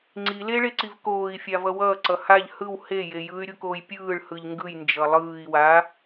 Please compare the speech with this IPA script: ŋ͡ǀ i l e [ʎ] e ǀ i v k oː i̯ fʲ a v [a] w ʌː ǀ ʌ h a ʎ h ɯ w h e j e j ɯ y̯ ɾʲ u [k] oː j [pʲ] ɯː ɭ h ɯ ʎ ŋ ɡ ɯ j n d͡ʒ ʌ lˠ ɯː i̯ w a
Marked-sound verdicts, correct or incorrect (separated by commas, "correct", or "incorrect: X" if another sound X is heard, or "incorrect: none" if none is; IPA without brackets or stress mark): incorrect: ɭ, incorrect: ʌ, correct, correct